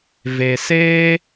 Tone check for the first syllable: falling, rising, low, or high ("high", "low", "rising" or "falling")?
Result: low